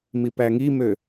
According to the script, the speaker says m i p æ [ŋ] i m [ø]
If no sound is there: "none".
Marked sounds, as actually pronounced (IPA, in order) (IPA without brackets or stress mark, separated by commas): ŋ, ø